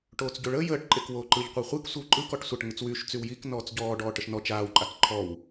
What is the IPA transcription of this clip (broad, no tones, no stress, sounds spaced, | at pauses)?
ʈ oː t͡s ɟ o ɭ əː j əː ʈ ǃʼ e k w oː ǃ ɯ ʎ qʷ i χʷ ɨ k sʷ e w ǃʼ ɯ k ɔ ʈ sʷ a ʈ ŋ ɯ t͡s w yː ʃ t͡s y w j i k n ɔː t͡s ɟ ɔː ɖ ɔː ʈ ə ʃ n ɔ t͡ʃ aː w ǃʼ a k ǃʰ ɔ w